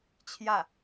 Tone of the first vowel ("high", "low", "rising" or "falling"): falling